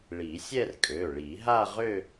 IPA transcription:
ɭ i˨˩˦ sʲ ɛ˥˧ r kʼ ø˩˧˩ ɭ i˨˩˦ ɦ a˥˧ ʁ ø˥˧

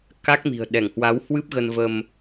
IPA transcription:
k a˦˥ k̚ m i̤˨˩ ə̯ ɗ ɛ˧˩ ŋ h w a˨˦ w h w ɨ˦˥ p̚ ɣ ə˧ n v ə˧ m

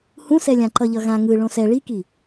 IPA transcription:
h ũ s ɛ lʲ ã ǃ ʌ ʎ ʌ ɣ ã ŋ ɯ ɭ õ s ɛ ɭ i k i

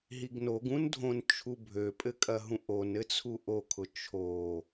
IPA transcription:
ɦ i ɡ n o ɡ ũ n dʱ õ n t͡ʃʰ u bʱ ø pʼ ɘ kʼ ɐ ɦ ũ ʔ o n ɘ t͡sʰ u ʔ o kʰ ʊ t͡ʃʰ o

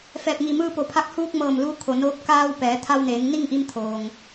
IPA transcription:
f ɛː˧˩ p̚ ŋ i˧˩ m ɯː˧ p o˩˧ pʰ a˧ k̚ h uː˧ k̚ m ɤː˧˩ m l u˧˥ kʰ o˩ n oː˧ p̚ k aː˧ w p ɛː˩˧ t̪ʰ a˧ w n eː˩˧ ŋ n i˥˨ ŋ ʔ i˧ m t̪ʰ oː˩ ŋ

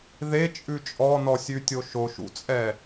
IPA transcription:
ð e t͡ʃʼ ʉ t͡ʃʼ ɔ n ɔ sʲ ʉ tʲ o ʃ o ʃ ṵ t͡sʼ ɛ

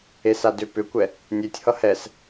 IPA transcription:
e s a d ʏ p ʏ kʷ ɛ | nʲ e tʲ h ʌ h ɛ s

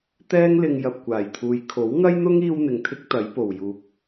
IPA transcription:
t̪ ɛː˥ ŋ l ɪ˧ ŋ j ɐ˨ p̚ kʷ aː˨˩ j t̪ʰ uː˨ j kʰ o˨˥ w ŋ ɐ˥ j n̪ ʊ˥ ŋ iː˥ w n̪ ɪ˨ ŋ t̪ʰ ɪ˥ k̚ t̪ ɐ˨˥ j p o˨˩ w j uː˨ k̚

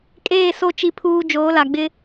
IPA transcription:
kʼ eː˦˨ s o˦ t͡ʃ i˦ pʰ uː˦ d͡ʒ oː˨˦ l a˨ ɡ͡b ɪ˦

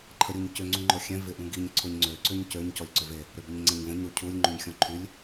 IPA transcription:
ǃʰ ə ɾʲ u ɲ c ʏ ŋ͡ǀ ũ ŋ͡ǃ ɔ xʲ ɛ̃ v ɪ ʔ ũ ɡ i ɲ ǀʰ ʊ ɲ ŋ͡ǀ ø ǀ ʏ ɲ c ø ɲ c ɔ lʲ ǀ ʏ v e | ɾ ø b ʏ ɲ ŋ͡ǀ ẽ ɲ v ə̃ ɲ ɾ u cʰ u lʲ ŋ͡ǃ ũ ɲ xʲ ɔ̃ ǃʰ y lʲ

